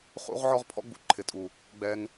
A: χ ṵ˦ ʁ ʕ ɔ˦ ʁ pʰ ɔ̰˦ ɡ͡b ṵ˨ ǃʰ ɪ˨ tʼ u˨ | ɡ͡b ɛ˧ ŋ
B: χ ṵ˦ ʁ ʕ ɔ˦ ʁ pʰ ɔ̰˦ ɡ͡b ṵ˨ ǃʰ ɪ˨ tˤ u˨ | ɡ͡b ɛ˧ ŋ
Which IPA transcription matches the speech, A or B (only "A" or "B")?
A